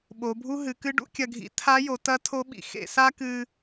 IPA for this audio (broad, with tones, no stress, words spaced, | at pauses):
ɓo˩˧bʱu˥ɦɨ˩˧kɨ˥ ɖṵ˥kʲɐ˧ɡʱḭ˧˥ tʰa˧˥jo˩˧tɐ˧˥ tʰo˧˥ɓḭ˩ xḛ˧sa˥kɨ˧